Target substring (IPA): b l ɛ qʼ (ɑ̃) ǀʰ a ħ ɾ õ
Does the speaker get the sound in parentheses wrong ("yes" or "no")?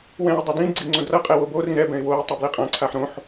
yes